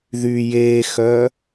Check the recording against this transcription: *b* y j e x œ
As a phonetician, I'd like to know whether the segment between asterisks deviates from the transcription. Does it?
yes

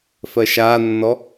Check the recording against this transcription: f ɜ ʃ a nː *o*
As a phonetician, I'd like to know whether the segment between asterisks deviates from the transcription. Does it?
yes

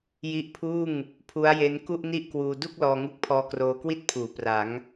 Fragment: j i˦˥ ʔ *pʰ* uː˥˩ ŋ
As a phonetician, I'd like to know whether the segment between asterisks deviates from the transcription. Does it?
no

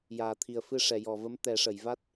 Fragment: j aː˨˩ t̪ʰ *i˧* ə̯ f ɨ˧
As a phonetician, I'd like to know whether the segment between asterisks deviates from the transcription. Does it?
yes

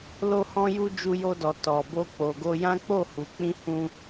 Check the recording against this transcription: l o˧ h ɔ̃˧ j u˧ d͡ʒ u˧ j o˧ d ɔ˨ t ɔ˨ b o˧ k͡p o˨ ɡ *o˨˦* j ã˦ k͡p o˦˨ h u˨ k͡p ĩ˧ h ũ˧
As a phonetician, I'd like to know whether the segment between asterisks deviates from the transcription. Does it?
yes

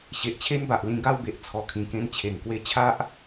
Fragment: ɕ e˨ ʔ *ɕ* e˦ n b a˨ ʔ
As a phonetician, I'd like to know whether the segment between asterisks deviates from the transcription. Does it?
yes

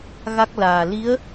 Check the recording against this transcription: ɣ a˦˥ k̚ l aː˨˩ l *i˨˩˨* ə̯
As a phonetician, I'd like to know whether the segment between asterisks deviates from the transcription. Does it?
yes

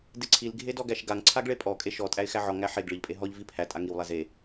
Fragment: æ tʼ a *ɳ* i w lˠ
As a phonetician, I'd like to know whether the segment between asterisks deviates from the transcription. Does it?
yes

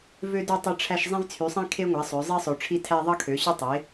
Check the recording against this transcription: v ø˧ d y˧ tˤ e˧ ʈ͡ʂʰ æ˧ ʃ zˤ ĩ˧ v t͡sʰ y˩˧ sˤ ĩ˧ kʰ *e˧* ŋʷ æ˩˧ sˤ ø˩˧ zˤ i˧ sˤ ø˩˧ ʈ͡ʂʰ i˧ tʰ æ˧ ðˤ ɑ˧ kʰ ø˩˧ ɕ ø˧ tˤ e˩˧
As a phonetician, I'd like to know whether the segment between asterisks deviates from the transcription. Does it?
no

